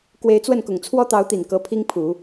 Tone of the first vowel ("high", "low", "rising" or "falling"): rising